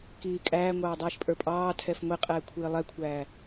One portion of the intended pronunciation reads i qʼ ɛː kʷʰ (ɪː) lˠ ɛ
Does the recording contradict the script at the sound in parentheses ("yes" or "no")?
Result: no